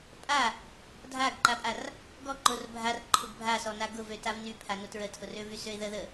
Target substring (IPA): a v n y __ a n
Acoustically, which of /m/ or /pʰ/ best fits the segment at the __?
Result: pʰ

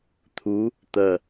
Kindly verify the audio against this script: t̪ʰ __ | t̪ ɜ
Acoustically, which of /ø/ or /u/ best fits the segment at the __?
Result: u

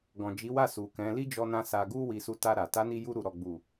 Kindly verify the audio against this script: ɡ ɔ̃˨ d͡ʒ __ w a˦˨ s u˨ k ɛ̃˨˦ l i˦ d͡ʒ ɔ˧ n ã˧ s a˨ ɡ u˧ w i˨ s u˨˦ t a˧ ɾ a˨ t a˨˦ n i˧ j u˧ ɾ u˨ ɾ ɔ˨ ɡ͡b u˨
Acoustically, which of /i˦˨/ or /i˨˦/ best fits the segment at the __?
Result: i˨˦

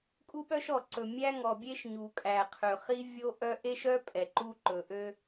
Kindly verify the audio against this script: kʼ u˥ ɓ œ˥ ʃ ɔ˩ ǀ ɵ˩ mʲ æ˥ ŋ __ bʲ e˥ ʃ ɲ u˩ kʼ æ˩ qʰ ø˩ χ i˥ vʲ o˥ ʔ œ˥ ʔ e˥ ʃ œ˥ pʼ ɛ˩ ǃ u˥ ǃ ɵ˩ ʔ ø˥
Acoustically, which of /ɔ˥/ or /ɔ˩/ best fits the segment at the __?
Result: ɔ˩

